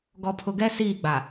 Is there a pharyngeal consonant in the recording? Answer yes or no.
no